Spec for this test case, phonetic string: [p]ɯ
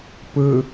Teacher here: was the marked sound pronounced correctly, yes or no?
yes